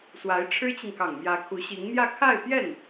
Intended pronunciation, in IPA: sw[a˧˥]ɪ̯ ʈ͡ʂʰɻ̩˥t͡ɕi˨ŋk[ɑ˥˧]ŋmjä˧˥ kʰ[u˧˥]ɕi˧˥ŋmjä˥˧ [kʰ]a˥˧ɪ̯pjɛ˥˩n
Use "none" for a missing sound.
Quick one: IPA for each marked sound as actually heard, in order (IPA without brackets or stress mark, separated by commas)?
a˧˥, ɑ˨˩, u˧˥, kʰ